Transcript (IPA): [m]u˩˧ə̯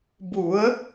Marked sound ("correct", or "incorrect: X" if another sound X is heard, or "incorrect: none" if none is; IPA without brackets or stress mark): incorrect: b